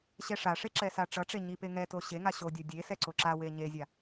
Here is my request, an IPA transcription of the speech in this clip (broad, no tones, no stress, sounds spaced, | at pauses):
ɕ ɛ ʂ a ʂ e ǁ ɛ s a ʈ͡ʂ ʌ ʈ͡ʂ e ɲ i p e ŋ ɛ t o ɕ e ŋ a ɕ o dʲ o dʲ e s ɛ ǀ o ǁ a w e ɲ e zʲ a